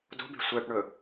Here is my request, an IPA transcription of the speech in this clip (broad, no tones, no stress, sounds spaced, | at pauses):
d o̤ b e̤ sʷ ɛ ʈ ɳ ɵ